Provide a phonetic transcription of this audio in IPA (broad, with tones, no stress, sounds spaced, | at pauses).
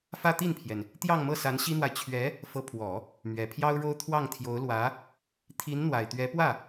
f ä˥ t̪ i˥˩ n pʰ j ɛ˩ n | t̪ j ɑ˥˧ ŋ m ɤ˥˩ s a˧˥ n ɕ i˥ n̪ w a˨ ɪ̯ t͡ɕʰ ɥ ɛ˧˥ | f ɤ˧˥ pʰ w ɔ˨˩˦ | m ɥ ɛ˨˩ pʰ j ɑ˥ ʊ̯ ɻ o˥ ʊ̯ t̪ʰ w ɑ˥˩ ŋ t̪ʰ j o˧˥ ʊ̯ l w ä˧˥ | t̪ʰ i˧˥ n n̪ w a˨˩ ɪ̯ t̪ ɥ ɛ˧˥ p w ä˥˩